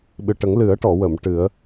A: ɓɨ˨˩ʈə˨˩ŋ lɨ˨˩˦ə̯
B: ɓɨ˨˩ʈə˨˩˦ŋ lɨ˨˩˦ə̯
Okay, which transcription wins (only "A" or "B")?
B